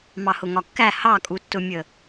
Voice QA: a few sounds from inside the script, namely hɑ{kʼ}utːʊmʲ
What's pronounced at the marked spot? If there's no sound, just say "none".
kʼ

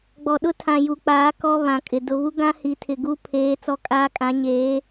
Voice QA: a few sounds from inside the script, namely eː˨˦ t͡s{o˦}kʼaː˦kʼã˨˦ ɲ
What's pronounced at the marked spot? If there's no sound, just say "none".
ɔ˦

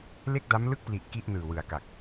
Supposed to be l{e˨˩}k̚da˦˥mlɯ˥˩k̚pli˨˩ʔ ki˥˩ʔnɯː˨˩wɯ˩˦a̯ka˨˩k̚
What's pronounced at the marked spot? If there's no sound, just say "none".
e˥˩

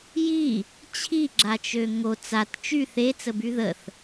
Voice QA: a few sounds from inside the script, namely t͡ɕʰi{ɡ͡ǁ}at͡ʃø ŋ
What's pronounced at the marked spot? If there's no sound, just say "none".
ɡ͡ǁ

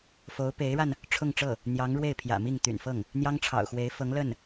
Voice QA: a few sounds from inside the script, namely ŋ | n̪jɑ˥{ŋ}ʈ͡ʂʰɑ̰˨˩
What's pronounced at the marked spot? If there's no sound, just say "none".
ŋ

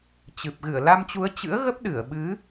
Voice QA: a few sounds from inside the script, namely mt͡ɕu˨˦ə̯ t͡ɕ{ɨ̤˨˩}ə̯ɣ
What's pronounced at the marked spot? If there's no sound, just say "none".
ɨ̰˧˥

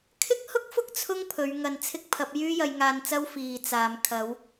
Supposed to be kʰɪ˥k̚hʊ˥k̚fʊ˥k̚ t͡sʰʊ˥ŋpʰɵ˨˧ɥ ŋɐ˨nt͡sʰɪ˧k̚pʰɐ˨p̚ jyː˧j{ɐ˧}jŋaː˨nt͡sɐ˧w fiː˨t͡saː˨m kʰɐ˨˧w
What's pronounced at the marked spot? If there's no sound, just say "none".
ɐ˨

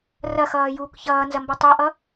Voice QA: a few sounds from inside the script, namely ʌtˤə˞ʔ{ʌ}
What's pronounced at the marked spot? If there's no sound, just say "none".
ʌ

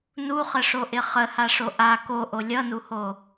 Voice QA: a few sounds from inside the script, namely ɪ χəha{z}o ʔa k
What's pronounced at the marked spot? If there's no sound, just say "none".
ʂ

